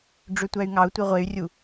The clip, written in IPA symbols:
ɖ͡ʐ ø tʷ æ y̯ ŋ ɑ u̯ tʷ i ʁʷ e y̯ rʲ u

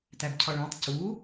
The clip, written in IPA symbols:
t æ b cʰ ɒ ɭ æ̃ tˤ c u

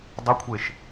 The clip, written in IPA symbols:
dˤ ʉ kʷʰ e ʃ

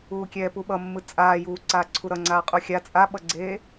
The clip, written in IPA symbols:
uː kʲ ɛː p u ɓ ʌ mː ɯ t͡sʼ aː j uː ǀ aː ǀʰ u ɾ ʌ ŋ͡ǀ aː qʼ u xʲ a t͡sʼ a ɓ ʌ ɡ͡ǀ eː

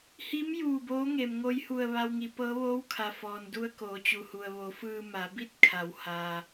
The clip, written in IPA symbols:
h i˧˥ m j uː˧˩ b oː˧˥ ŋ e˩ m ŋ o˧ j h u˧˩ ə̯ ʋ a˧ w ŋ i˩˧ p ɤː˧˥ ʋ oː˧˥ w kʰ a˩ f ɔː˩ n d u˧ ə̯ k oː˩˧ t͡ɕ u˩ h u˩ ə̯ ʋ o˩˧ f ɯː˧ m a˩˧ b i˥˨ t̚ kʰ a˩˧ w h aː˩

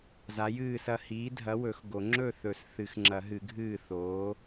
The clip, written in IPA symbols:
z a˨˥ j ɨː˥˩ s ɐ˥˩ h iː˨˥ dʱ ɐ˨˥ w ɵ˨˩˦ x ɡ o˨˩˦ ŋ͡ǁ ɵ˥˩ θ ɵ˨˩˦ s θ ɨ˨˩˦ x ŋ͡ǁ ɐ˨˩˦ ɦ ɨ˨˩˦ ɡʱ ɨː˥˩ θ oː˨˥

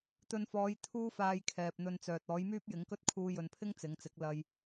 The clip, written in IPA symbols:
t̪ ɵ˧ n f ɔː˨˧ j t̪ʰ uː˥ f aː˧ j kʰ ɛː˨ p̚ n̪ ɵ˧ n t͡s œː˨ t̚ ɔː˨˥ j m yː˥ p̚ j ɪ˨˥ ŋ k ɵ˥ t̚ kʰ uː˧ j ɵ˨ n pʰ ɪ˥ ŋ t͡s ɪ˨˧ ŋ t͡s ɪ˨˥ k̚ l ɐ˧ j

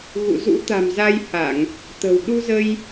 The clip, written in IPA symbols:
ɣ ṵ˧˨ z ṵ˧˥ t̪ a̤˨˩ m z a˧ j h a˧˩˨ ŋ | t̪ ə̤˨˩ w ɗ u˧ z ə˧ j

